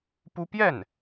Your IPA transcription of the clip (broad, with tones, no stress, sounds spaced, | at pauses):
p u˥ p j ɛ˥˩ n